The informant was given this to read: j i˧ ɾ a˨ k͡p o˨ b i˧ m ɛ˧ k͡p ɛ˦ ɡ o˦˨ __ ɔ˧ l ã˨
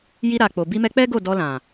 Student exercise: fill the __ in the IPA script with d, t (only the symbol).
d